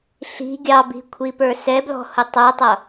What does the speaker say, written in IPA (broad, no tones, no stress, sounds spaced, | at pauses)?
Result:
ɬ i̤ ɡʲ ɑ b i̤ kʷʰ i p ə˞ s ɛ b l ɔ̤ h ʊ tˤ ə˞ tˤ ʌ